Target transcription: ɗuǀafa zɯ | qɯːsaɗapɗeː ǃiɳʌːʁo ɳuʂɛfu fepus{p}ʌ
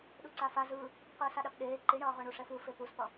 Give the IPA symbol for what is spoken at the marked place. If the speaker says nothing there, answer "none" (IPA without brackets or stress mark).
p